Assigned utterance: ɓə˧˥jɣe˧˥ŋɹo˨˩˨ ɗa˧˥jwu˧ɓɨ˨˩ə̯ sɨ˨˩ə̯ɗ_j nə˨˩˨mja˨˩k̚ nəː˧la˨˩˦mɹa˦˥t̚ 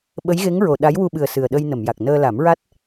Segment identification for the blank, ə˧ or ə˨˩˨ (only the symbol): ə˧